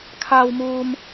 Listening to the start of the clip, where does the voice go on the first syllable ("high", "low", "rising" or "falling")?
low